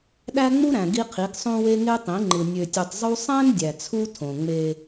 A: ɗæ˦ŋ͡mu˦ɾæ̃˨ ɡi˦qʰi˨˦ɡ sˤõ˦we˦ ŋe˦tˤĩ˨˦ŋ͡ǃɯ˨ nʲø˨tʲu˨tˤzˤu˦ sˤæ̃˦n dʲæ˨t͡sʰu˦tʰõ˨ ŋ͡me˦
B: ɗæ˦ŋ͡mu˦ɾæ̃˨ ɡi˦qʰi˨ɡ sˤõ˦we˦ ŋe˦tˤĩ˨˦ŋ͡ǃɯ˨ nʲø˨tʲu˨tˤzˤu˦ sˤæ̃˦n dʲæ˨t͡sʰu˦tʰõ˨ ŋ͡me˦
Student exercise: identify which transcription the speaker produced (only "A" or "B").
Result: A